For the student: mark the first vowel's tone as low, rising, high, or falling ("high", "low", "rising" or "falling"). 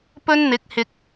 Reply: high